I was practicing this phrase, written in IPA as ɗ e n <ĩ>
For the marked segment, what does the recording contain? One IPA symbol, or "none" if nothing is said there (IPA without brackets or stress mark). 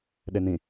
ĩ